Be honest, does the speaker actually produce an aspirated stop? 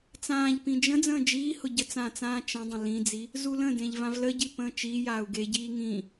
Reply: no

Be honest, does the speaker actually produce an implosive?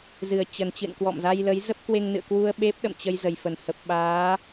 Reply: yes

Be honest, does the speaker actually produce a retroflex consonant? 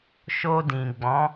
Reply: no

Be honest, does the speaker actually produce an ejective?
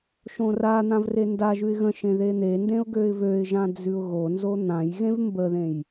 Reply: no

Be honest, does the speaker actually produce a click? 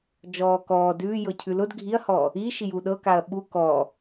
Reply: no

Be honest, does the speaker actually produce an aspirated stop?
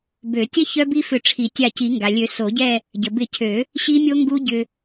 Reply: yes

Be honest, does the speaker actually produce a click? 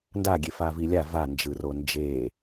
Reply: no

